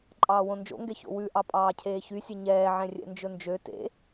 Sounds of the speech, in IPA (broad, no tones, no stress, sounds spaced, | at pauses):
ǃʼ ɑː w õ n d͡ʒ o̰ ŋ ɡ ɛ ç o̰ w ʉ ʔ ɑ pʼ ɑː cʰ eː ç y sʲ ɛ ɲ ɛː ʕ ɛ̃ rʲ ɛ̰ n d͡ʒ ɵ n d͡ʒ ø t ḛ